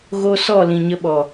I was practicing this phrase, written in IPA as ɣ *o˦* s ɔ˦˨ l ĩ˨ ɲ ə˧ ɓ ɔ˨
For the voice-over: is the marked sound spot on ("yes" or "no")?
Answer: yes